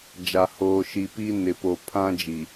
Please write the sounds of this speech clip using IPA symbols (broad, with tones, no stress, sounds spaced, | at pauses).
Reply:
d͡ʒ a˨ h oː˨ ʃ i˨ p i˦ n ɪ˨ p o˨ pʰ ã˦ d͡ʒ i˨